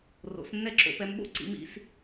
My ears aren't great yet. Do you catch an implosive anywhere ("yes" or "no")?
yes